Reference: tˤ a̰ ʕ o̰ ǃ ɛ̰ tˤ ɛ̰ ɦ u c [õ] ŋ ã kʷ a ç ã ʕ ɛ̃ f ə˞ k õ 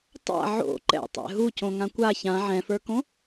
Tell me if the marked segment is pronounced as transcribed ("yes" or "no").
yes